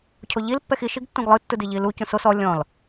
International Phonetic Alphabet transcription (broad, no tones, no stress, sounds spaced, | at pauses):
cʰ o ʎ i l pː ɛ x i ʃ i ɡ tː ũ ɡ lˠ ɯ tː ɯ d i ʎ i l u c ũ s o s ɔ lʲ ɔ̃ l